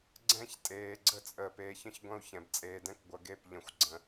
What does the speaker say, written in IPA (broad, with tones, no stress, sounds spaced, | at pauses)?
ɡ͡ǀ ɛ̃˦ ç tʼ eː˨ ɡ͡ǀ ə˦ t͡sʼ əː˨ p eː˨ ç ə̃˦ ç ɡʷ ɐ̃˦ u̯ ç ɛ̃˨ b t͡sʼ eː˨ d ɛ̃˦ k ɡʷ ɐ˨ ɡ e˦˨ p ʎ ə̃˨ xʷ ɡ͡ǀ ə̃˨